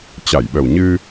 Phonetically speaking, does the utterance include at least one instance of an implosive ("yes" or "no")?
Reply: yes